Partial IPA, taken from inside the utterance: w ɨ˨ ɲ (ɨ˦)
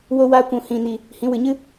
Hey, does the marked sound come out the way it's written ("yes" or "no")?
yes